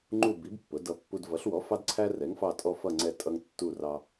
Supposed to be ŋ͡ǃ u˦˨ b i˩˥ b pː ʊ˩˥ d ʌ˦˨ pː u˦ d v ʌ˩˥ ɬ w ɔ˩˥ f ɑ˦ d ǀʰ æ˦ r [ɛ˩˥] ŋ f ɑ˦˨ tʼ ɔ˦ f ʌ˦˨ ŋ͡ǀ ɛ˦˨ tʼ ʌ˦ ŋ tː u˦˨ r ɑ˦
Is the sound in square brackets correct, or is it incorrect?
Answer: correct